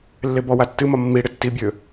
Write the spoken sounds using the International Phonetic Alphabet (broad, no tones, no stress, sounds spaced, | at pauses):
lː e b ɔ w a tː ɨ m ɒ mː i ɽ ɪ tː i bʲ ø